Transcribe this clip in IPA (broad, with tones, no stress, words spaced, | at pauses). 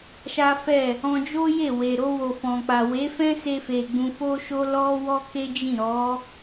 ʃa˦fɛ˦˨ | ɔ̃˧d͡ʒo˦je˦˨we˨ ɾo˧ wo˨fɔ̃˨k͡pa˨ we˨˦fɛ̃˦se˧fe˨ ɡ͡bũ˧fo˦ʃo˦ lɔ˦wɔ˦ke˦ d͡ʒĩ˦˨ɾɔ˨˦